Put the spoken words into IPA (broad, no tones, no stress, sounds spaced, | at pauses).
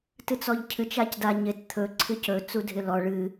t ɨ t͡s ɔ ʎ cʰ ɨ t͡ʃ a c d a ɲ ɪ t t̪ʰ ɵ ǀʰ ɨ c ɵ t͡s u dʱ ɪ l ɔ ɭ ɨ